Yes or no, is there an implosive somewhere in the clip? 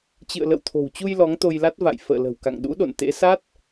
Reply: yes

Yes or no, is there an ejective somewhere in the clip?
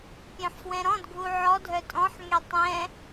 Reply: yes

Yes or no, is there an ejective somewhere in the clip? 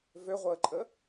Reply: yes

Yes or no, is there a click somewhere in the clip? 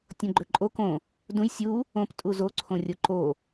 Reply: yes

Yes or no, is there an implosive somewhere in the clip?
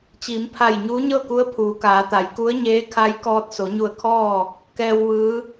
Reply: no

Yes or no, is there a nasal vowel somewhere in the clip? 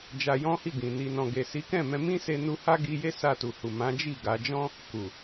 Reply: yes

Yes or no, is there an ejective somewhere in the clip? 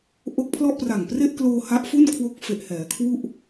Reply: no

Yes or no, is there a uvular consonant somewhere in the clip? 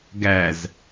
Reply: no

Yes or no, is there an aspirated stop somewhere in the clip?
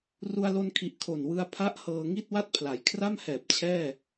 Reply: yes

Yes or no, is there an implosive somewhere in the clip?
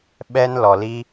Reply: yes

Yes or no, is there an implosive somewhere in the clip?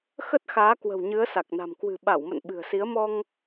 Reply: yes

